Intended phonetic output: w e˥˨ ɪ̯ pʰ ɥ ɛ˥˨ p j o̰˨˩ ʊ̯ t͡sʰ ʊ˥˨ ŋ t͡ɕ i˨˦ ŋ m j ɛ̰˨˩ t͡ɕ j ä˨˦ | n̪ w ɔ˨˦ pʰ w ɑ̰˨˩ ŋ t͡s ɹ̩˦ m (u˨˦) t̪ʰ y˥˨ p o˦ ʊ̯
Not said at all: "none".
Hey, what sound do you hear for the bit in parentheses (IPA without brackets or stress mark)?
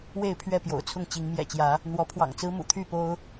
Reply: ṵ˨˩